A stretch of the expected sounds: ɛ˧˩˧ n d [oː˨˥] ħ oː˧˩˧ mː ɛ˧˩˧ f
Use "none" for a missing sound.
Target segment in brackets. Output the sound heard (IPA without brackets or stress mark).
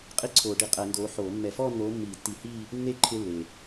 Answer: oː˨˥